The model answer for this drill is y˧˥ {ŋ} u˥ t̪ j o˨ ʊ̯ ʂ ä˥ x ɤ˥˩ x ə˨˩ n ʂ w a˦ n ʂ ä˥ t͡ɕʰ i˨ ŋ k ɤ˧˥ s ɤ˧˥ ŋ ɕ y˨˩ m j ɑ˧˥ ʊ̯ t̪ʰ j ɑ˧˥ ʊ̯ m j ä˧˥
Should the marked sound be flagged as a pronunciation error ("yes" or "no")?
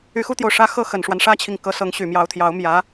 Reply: yes